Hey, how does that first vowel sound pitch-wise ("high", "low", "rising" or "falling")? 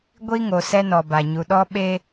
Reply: high